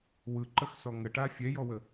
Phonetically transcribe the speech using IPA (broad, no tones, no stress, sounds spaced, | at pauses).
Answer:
w ɯ ǃ ə x s ɔ ŋ ə ʈ a fʲ ɛ j ɔ w ə